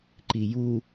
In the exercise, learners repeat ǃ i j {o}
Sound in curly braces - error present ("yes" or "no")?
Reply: yes